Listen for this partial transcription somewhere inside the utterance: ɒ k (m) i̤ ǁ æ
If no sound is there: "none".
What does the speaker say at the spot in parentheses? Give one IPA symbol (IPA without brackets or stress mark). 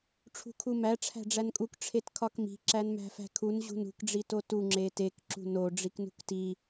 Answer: m